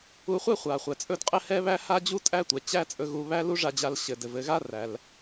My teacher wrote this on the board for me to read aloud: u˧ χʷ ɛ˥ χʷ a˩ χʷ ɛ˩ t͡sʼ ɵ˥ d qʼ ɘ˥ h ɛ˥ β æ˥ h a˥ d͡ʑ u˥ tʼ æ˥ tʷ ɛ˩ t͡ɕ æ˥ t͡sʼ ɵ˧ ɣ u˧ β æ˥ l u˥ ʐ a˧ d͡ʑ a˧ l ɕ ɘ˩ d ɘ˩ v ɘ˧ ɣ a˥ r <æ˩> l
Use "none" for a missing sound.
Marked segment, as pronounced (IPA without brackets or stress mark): æ˩